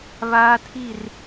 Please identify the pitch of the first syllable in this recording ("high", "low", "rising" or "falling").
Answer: high